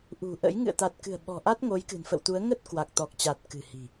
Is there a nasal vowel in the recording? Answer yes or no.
no